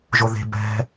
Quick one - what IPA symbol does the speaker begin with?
ʒ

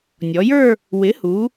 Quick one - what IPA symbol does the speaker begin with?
nʲ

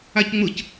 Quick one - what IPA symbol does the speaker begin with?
a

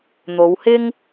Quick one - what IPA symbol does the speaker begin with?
n̪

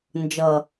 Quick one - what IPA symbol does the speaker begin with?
n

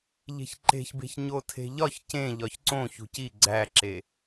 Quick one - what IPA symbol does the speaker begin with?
ʎ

